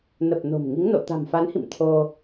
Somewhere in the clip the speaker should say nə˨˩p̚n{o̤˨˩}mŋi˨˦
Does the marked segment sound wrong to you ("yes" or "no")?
no